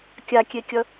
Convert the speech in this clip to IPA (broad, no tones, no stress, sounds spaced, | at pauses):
kʲ a kʲ e kʲ ʌ